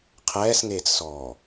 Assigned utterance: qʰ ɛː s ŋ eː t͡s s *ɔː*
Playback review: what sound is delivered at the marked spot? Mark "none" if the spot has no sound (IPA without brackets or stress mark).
ɔː